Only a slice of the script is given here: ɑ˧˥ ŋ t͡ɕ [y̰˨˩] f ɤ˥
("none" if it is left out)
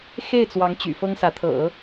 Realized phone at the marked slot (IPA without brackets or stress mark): y̰˨˩